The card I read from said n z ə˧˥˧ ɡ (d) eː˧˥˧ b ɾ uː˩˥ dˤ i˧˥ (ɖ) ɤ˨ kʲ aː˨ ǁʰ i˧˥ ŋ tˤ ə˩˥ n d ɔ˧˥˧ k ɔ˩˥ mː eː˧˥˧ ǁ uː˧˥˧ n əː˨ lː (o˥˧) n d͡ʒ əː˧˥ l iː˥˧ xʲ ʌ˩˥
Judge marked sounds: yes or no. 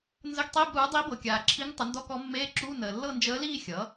no, no, no

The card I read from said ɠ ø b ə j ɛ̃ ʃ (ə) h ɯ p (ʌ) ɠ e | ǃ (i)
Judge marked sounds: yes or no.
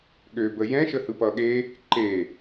yes, yes, no

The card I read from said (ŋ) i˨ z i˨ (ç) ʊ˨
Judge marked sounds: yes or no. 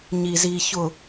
no, yes

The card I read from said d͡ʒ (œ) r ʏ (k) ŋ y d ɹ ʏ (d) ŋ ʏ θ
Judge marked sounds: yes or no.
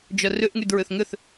yes, no, no

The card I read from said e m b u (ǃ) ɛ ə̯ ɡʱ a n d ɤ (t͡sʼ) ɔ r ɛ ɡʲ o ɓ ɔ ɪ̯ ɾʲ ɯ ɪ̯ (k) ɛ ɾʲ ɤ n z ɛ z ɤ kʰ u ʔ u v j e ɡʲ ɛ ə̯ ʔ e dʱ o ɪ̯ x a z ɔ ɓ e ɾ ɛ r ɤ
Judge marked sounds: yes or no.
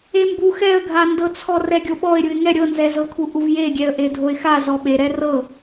no, no, no

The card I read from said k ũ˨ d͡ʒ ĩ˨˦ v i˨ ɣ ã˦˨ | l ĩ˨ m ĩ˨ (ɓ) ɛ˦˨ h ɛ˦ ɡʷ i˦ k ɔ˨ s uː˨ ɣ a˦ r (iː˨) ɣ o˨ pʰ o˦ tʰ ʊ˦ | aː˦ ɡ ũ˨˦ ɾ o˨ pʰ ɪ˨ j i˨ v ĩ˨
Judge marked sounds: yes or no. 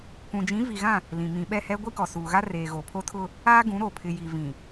yes, no

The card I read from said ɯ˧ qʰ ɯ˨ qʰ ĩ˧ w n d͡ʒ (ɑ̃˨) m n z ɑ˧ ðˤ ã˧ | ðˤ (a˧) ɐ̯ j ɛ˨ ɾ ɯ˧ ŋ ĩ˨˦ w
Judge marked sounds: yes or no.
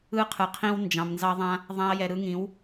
yes, no

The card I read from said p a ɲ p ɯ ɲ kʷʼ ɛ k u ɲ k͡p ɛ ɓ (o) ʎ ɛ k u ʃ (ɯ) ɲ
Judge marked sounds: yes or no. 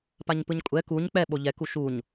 yes, no

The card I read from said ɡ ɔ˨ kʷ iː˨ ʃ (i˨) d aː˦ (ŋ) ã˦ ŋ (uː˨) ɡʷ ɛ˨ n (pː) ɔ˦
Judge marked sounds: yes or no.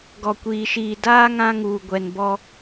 no, yes, yes, no

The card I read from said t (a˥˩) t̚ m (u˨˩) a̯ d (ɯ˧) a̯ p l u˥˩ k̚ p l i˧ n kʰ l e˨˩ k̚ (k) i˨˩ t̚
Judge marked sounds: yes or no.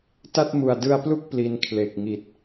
yes, yes, yes, no

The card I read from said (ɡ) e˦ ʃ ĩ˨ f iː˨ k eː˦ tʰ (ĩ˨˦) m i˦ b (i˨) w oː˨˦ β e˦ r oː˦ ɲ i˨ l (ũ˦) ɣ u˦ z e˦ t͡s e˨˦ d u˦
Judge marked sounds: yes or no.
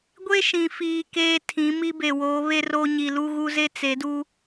no, yes, no, no

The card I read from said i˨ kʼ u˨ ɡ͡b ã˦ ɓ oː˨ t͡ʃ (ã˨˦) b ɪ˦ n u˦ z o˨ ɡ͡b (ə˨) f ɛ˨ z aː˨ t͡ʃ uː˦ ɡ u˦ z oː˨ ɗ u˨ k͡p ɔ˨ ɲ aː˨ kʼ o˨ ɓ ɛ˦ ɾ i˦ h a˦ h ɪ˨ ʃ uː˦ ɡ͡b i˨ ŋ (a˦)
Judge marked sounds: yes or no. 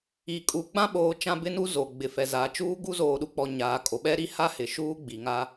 no, no, yes

